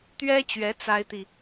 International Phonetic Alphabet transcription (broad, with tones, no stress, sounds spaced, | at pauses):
t̪ ɥ ɛ˥ t͡ɕ ɥ ɛ˧˥ t͡s a˥ ɪ̯ t̪ i˨